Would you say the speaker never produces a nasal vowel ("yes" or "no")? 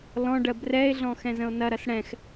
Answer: no